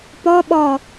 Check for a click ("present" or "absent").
absent